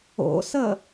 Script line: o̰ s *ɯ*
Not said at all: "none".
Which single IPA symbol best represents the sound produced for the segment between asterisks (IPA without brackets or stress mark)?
ə